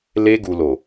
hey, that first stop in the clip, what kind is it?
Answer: plain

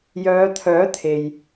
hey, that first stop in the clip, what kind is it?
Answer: aspirated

